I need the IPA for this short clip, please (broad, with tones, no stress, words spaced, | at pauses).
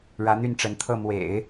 ɻä˧˥n̪y˥˩nʈ͡ʂə˧˥nt̪ʰɤ˥˩ mwḛ˨˩˦ɪ̯